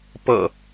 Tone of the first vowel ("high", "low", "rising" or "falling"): low